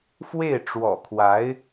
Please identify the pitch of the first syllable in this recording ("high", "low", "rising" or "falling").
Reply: falling